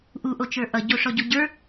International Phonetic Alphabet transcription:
ʔ u ʔ o t͡ʃ ə˞ ʔ ʌ ɟ o ʂ ɔ ɟ o ɟ ə˞

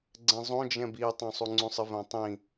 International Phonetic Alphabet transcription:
ɡ͡ǀ ɛ̃ zˤ õ d͡ʒ ɛ̃ b i tˤ õ sˤ u ŋ͡ǀ ũ sˤ ɪ v ɛ̃ tˤ ĩ

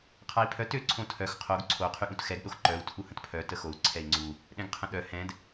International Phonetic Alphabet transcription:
qʰ a i̯ pʰ œ t ø ǀʰ õ tʰ œ x qʰ o ɡ ǀʰ o qʰ y ɠ ũ t x ɛ ɡ ɗ o x ǃ œ u̯ tʰ u h ə̃ t pʰ œ t ə x o u̯ ǀʰ ɛ i̯ ŋ͡ǀ u | ɗ ɛ̃ ɡ qʰ ə̃ ɗ œ h ɛ̃ d

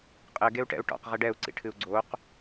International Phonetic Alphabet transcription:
qʼ ɘ ɡ e u̯ ʈ ɛ̰ u̯ ʈ ɔ̰ q ʁ ɛ ɖ ɛ u̯ ǀ ḭ ʈʰ ɨ u̯ ɡ͡ǀ o q

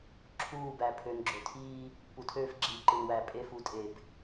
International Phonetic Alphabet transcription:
ǁʰ uː˦˨ b æ˨ pʰ ø˨ n ɡ͡ǁ ø˨ tʰ iː˦ | p u˨ tʰ øː˦ f ɡ͡ǁ iː˨ ǃ ɯ˨ n w æ˨ pʼ e˦˨ f u˦ tʼ e˦˨ b

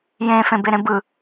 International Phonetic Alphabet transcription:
j ẽ f ẽ b e ɾ ẽ b ɯ

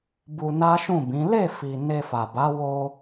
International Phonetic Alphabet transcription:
b u˧ n a˦ ʃ ũ˦˨ b ĩ˨˦ l e˦˨ f i˨ n e˧ f a˨ b a˨˦ w o˧

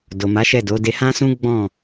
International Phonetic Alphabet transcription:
d o˨ m a˨˦ ʃ ɛ˦˨ d o˨˦ d e˧ h ã˦ s ũ˦ ɡ͡b ɔ̃˦˨

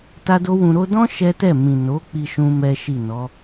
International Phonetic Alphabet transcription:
t a˦ d o˦ w ũ˧ ɾ o˧ d ɔ̃˦ ʃ ɛ˦ t ɛ˦˨ m ĩ˨ n o˨˦ k͡p i˦ ʃ ũ˦ m ɛ˦ ʃ i˦˨ n ɔ˨˦

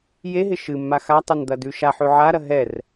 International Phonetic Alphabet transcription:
j e ɦ ɪ ʃ ɨ mː a x a tˤ e n d̪ ɐ d ʉ ʃ a ħ ʉ ʕ a ɾ ɐ ɦ ɛ r

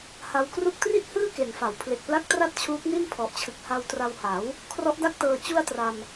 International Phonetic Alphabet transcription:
h a˧ w k r u˥˩ k̚ t r i˥˩ t̚ h ɯː˥˩ k e˨˩ n f a˩˦ w pʰ l e˨˩ k̚ p l a˦˥ k̚ t r a˥˩ t̚ t͡ɕʰ uː˦˥ k̚ n i˥˩ n pʰ ɔ˨˩ ʔ t͡ɕʰ ɯ˨˩ k̚ h a˧ w t r a˧ w h a˩˦ w | kʰ r ɔ˦˥ ʔ d a˥˩ k̚ t ɤː˧ t͡ɕ u˥˩ a̯ t r a˧ m

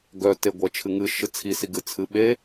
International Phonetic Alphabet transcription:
ɡ œ t e ɡʷ ɜ t͡ʃʰ ɨ ŋ ɨ ʃ ɨ t͡sʰ i s i ɡ ɨ t͡sʰ ɨ ɓ e

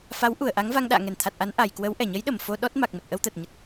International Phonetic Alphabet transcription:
f a˨˦ w ʔ u˧˩ ə̯ ʔ a˨˦ ŋ v a˧ ŋ ɗ a̰ː˧˨ ŋ ɛ˧˩ n t̪ʰ a˨˩ t̚ ʔ a˨˦ n ʔ a˨˩ j k w ə˨˦ w ʔ ɛ˧˩ ɲ ə˨˦ j ɗ ə˧˩ m f o˧ ɗ ɔ˦˥ t̚ m a˨˩ k̚ m ə˨˩ t̚ ʔ ə˧ w t̪ əː˨˩ t̚ ɲ ə˨˩ t̚

